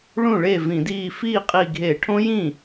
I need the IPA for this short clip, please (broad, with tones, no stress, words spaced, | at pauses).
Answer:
ɭũ˥˩ɭe˥˩vĩ˧˩˧ diː˧˩fiː˥˩qʼi˧˩ ɡʱe˧˩˧ʈʰõ˦˥jĩ˥˩